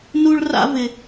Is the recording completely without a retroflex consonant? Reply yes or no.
no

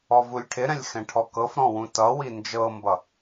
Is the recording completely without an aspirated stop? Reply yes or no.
no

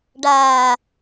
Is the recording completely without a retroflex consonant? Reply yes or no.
no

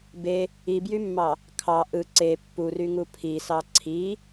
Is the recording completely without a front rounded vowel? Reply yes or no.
no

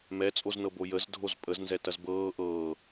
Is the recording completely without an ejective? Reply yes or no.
no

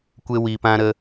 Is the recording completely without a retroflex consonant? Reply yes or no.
yes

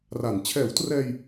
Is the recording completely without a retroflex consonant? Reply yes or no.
yes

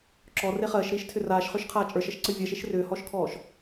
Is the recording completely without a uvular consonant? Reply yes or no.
no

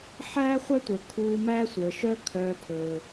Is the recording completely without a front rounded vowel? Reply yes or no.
no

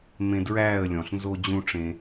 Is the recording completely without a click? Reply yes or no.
yes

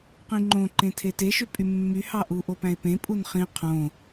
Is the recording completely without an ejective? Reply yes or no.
no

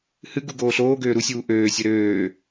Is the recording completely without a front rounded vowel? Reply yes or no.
no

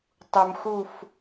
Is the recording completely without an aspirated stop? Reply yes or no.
yes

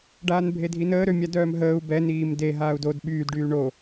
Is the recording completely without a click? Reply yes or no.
yes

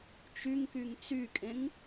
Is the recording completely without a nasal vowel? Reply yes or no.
no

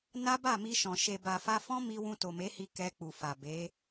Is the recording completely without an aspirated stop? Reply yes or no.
yes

